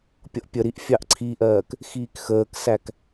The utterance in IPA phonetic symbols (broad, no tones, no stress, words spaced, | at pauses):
pʲʌʔpʲəɾiʔ fʲɑʔǀʰiʔɜːk | xiːkxəːksæk